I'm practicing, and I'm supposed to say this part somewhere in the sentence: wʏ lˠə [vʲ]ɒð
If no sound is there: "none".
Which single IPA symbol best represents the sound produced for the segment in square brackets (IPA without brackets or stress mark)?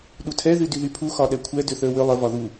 v